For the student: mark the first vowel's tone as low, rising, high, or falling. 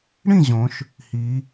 falling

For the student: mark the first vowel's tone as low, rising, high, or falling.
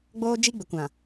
high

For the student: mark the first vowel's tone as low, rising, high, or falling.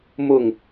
falling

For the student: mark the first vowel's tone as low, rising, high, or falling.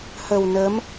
low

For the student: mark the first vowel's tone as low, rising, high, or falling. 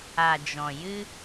low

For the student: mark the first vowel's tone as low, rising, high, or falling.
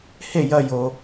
falling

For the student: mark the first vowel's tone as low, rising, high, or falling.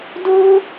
high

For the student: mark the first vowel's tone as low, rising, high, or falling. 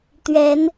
rising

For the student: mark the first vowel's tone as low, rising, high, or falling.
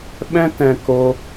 high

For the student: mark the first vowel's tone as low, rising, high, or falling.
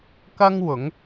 high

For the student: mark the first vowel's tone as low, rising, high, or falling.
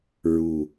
low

